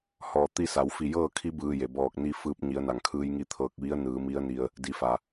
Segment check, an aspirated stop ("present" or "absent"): present